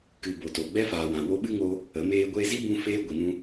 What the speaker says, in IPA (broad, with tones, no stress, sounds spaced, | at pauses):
k ɨ˨ b o˨ t o˨ ɡ͡b ɛ˦ f aː˨ w ã˨ w o˧ ɓ ɨ˦ ŋ o˧ | ə˨˦ m eː˦ ɡʷ eː˧ z i˦ b ũ˧ f eː˧ ɡʷ i˨ n ũ˧